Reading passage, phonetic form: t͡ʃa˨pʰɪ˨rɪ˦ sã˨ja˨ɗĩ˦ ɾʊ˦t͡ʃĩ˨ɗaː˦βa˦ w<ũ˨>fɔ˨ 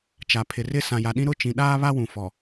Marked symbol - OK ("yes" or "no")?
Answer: yes